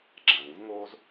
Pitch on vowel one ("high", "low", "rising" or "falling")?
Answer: low